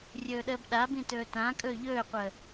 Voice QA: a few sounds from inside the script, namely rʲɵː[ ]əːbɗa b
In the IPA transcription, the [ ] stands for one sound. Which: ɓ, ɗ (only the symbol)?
ɗ